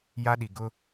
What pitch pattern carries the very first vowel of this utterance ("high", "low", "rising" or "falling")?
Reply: high